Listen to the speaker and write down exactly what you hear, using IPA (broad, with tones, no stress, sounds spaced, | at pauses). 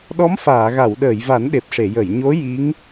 ɗ ɔ˧˥ m f aː˨˩˨ ɣ a˨˩˨ w ɗ əː˨˩˨ j v a˨˩˦ n ɗ e˨˩ p̚ ʂ e˨˩˨ j ə˨˩˨ j ɲ o˧˥ j i˧˥ ŋ